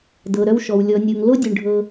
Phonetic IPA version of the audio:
d ɤ˩ ɾ œ˨ w ʃ ɔ˩ w lʲ ɔ˩ nʲ o˩ ŋ l o˦ dʲ ʉ˩ ɳ ɖʱ ɤ˨

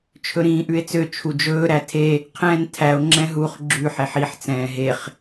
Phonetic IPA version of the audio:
t͡ʃʰ ɵ ɾ ĩː ʔ ʉ e̯ t͡s ø t͡ʃʰ u d͡ʒ ɵː ɾ æ tʰ e | qʰ ɛ̃ː n tʰ æ o̯ ŋ͡ǁ ɛ̃ ɦ u χ ɡ͡ǁ ʉ ħ e ħ i ħ t͡s ɛ̃ː ɦ e χ

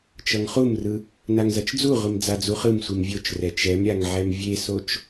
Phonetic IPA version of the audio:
t͡ʃ ʌ ŋ χ u m r ɯ | n a ŋ z ʌ t͡ʃ d͡z u ʁʷ i m d͡z a d͡z u χ ɯ m sʷ i m vʲ o t͡ʃ r ɛ t͡ʃ ɛ m ɾʲ a ŋ ʕ ɛ m vʲ e s o t͡ʃ

